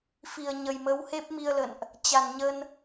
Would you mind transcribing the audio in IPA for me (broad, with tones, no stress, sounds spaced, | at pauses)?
f i˨˩ ə̯ ɲ ə˨˩ j m ə˨˦ w h e˦˥ p̚ m i˧ ə̯ l ə̰˧˨ n ʔ | t͡ɕ a˨˩ n ɲ ə˧ n